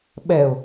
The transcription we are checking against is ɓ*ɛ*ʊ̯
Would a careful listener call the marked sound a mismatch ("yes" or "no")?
no